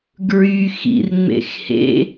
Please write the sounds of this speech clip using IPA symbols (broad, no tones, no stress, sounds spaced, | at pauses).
ɡ ɹ y x ḭ r ŋ͡m ḛ x h ḛ